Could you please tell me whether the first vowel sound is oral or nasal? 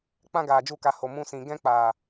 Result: nasal